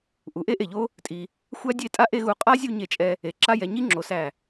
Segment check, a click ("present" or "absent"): present